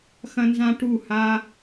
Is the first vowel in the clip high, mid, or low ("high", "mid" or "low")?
low